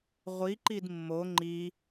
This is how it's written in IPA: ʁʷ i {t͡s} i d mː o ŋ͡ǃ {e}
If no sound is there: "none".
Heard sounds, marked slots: ǃ, i

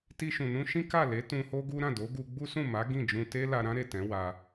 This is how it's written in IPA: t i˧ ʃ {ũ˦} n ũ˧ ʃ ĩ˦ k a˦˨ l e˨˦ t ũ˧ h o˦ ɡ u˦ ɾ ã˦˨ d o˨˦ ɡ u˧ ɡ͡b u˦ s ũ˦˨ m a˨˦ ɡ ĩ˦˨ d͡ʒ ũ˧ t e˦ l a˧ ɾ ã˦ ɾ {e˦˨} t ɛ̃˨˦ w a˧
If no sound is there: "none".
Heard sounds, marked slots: ũ˨, e˦˨

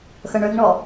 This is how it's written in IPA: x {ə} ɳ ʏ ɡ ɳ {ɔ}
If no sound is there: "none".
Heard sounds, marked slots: ə, ɔ

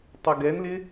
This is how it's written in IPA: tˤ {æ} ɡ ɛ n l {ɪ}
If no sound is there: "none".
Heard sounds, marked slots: ɐ, ɪ

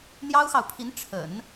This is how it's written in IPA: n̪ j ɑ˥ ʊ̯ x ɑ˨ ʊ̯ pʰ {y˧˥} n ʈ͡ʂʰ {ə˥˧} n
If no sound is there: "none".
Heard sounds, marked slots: i˧˥, ə̰˨˩˦

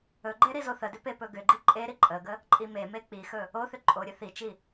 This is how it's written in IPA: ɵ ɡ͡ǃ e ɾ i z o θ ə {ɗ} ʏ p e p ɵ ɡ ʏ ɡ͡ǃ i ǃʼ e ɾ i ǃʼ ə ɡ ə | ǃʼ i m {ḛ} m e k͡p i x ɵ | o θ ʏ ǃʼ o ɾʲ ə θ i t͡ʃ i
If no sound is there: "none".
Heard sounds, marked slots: d, e

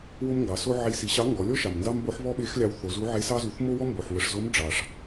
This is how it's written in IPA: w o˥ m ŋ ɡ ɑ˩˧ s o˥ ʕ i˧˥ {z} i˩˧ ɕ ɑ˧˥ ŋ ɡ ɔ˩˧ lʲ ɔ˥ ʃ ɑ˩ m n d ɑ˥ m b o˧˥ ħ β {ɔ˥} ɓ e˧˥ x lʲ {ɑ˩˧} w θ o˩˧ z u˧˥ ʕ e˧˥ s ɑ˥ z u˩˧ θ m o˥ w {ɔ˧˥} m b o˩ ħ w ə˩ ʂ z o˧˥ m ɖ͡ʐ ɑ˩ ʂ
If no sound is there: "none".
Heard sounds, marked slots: s, ɔ˥, ɑ˧, ɔ˥

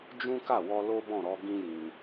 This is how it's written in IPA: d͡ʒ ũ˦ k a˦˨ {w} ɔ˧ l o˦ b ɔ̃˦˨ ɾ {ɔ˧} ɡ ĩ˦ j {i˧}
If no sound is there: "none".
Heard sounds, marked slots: w, ɔ˧, ĩ˧

